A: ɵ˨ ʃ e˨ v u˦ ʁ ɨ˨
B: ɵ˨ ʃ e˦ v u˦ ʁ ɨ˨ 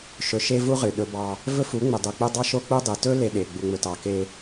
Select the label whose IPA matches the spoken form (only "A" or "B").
B